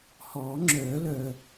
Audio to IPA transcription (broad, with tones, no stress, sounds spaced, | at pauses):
h ɔː˨˩˦ ŋ͡ǁ œː˨˩˦ l œː˨˩